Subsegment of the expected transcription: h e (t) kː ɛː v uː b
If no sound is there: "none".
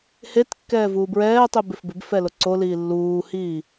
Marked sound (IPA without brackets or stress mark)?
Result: t